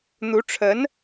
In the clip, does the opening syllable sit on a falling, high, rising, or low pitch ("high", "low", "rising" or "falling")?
rising